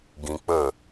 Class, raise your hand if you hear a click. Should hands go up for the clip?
no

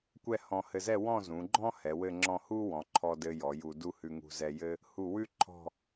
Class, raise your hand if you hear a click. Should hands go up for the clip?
yes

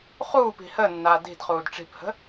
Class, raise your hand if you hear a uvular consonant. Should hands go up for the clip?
yes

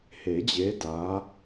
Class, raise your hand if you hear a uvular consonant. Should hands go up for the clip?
no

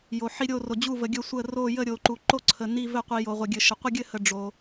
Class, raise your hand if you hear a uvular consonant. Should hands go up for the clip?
yes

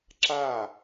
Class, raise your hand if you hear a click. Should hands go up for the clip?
yes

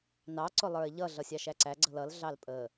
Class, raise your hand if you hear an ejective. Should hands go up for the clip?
yes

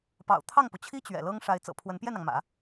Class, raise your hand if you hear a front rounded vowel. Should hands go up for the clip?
no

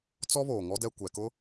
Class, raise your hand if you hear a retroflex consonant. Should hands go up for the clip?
no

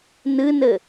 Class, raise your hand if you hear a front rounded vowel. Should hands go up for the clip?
no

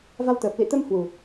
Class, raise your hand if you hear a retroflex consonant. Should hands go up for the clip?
no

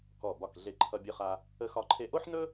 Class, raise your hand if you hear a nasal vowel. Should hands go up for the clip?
no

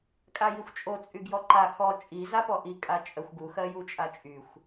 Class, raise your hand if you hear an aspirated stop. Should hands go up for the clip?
no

